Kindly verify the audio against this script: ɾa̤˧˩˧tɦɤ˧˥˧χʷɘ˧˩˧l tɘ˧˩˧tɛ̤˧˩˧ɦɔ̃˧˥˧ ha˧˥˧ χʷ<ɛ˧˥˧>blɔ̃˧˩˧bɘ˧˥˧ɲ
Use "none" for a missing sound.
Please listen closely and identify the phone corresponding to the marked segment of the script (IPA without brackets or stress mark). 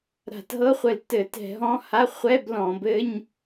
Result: ɛ˧˥˧